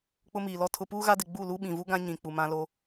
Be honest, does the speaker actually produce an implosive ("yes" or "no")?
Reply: yes